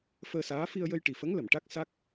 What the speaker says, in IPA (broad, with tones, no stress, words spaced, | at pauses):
fəː˧saː˧˥ fi˧ə̯jə˧jʈi˨˩fə˧˥ŋ lə˨˩˨mʈa˦˥k̚ sa˦˥k̚